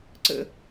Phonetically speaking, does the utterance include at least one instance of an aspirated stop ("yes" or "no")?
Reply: no